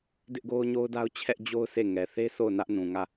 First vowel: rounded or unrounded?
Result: unrounded